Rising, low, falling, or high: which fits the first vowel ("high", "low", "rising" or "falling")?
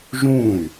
falling